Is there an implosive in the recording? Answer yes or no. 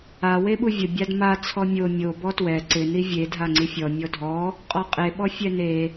yes